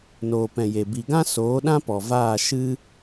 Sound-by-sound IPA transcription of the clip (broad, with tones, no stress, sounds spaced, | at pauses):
n oː˨ p ɛ̃˨ j e˨ b i˨ ɡ ã˦ s oː˨˦ ɗ ã˦ p ɔ˨ v aː˦˨ ʃ ɨ˦